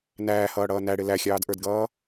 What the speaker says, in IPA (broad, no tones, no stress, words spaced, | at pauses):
næːhʌːɽʌː næɽɪ læxʲɑːdʔə˞dɡʌː